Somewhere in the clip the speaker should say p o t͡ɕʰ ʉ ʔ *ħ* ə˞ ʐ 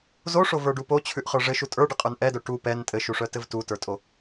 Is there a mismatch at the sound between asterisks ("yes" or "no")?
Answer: yes